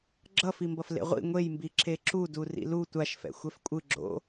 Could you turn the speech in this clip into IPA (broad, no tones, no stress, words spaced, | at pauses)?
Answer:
ɡ͡ǁʌfimbʌf lḛʁʷḭ ŋʷejmbi ǁeǁudu rḭlu tʷaʃfɛ̰ xʷɛfkʷʼɯ ɡ͡ǁo̰